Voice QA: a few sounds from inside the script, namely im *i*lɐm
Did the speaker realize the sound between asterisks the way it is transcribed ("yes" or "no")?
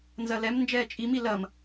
yes